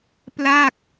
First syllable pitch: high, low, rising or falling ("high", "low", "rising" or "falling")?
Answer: falling